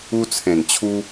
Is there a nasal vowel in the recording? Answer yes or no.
yes